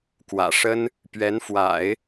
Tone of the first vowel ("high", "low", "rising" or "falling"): low